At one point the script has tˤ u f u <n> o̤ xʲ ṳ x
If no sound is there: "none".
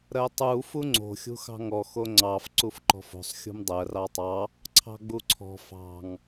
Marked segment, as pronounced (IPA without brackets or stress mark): ŋ͡ǀ